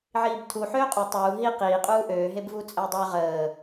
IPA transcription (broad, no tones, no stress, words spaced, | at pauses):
ʕiːbtʰu ħøːqʼu tˤuː ɦi qiːqʼuː ʔøːɦebvuː t͡sʼəːdˤø ʁəː